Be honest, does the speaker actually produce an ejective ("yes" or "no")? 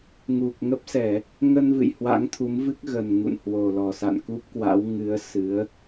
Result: no